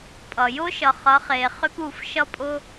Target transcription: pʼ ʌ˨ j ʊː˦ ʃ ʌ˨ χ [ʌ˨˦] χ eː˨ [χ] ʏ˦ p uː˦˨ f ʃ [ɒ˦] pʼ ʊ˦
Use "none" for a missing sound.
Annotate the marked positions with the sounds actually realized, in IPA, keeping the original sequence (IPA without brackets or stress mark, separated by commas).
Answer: ʌ˨˦, χ, ʌ˦